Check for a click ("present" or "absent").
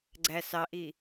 present